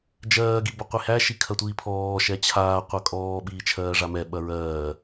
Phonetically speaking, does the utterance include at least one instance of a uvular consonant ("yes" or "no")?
yes